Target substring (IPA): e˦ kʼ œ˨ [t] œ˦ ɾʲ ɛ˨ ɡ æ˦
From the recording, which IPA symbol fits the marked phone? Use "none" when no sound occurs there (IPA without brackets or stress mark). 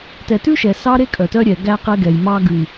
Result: t